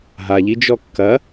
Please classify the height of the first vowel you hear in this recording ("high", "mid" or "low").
low